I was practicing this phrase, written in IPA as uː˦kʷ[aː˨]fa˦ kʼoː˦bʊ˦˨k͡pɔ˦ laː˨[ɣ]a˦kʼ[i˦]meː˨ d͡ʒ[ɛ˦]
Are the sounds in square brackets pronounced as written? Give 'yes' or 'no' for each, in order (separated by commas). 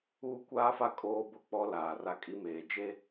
no, no, yes, no